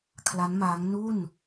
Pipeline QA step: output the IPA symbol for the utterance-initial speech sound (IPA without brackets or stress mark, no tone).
kʰ